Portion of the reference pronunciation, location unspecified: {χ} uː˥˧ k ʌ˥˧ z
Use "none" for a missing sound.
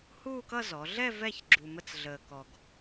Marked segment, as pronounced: h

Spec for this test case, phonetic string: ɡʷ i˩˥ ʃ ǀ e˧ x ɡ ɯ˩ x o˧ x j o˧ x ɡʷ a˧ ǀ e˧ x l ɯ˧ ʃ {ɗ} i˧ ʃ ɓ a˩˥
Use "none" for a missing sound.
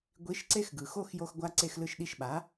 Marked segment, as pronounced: ɗ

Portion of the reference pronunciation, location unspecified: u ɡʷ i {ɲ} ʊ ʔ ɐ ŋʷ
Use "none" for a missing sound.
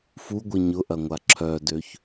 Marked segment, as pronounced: ɲ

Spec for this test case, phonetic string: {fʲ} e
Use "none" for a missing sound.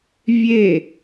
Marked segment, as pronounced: vʲ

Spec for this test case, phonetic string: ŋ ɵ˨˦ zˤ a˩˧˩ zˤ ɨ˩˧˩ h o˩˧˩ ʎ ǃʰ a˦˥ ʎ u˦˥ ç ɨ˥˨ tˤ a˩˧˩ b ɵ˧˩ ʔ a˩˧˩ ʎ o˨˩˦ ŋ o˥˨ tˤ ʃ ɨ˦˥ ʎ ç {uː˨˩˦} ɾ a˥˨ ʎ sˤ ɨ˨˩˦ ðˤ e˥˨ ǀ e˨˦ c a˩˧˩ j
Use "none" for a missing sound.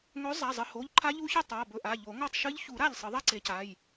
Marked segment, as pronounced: u˨˩˦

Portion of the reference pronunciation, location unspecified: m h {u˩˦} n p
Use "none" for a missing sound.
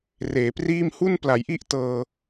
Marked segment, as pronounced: u˥˩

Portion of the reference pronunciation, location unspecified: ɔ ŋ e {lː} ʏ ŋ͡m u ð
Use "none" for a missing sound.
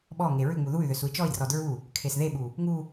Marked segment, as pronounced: ɹ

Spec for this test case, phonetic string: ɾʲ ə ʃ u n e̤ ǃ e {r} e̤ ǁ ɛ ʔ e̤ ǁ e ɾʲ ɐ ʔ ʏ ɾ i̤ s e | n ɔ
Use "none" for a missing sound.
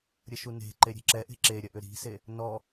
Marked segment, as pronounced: ɾʲ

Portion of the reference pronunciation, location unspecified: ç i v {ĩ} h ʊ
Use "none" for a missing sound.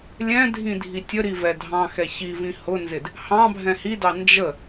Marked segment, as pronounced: ĩ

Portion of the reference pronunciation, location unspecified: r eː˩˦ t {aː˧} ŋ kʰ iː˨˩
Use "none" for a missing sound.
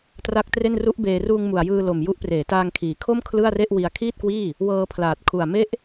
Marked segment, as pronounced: aː˧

